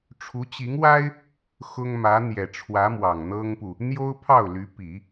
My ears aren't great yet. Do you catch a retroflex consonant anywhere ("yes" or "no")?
yes